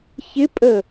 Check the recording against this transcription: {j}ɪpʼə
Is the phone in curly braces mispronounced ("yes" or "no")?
yes